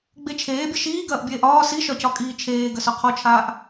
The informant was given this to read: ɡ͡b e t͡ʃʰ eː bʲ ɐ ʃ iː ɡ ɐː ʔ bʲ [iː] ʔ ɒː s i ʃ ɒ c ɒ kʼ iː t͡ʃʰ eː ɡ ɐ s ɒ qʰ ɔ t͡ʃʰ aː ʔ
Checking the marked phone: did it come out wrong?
yes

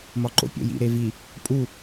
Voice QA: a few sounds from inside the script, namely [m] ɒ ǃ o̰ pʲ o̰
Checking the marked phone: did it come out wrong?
no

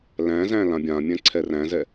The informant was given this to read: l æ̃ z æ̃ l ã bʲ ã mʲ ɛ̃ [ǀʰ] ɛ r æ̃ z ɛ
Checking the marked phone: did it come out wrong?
no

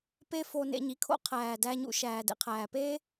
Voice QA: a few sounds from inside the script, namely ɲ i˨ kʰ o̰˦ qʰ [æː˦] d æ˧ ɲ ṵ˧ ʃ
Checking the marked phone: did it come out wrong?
yes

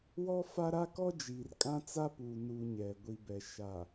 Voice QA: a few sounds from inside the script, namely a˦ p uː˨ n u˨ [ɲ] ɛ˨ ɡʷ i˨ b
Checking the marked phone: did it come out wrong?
no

